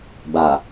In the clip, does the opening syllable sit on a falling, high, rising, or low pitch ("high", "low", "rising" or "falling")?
low